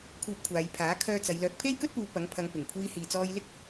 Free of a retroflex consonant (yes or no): yes